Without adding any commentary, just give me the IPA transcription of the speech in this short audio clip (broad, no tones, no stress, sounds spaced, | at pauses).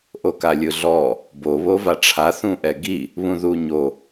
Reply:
ʔ o k a lʲ ɯ ɮ ɔ | b o β o v a ʈ͡ʂʰ a θ ũ ʔ ɛ ɡ i | β ũ ð u ɲ o